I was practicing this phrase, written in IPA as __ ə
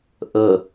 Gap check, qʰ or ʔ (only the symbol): ʔ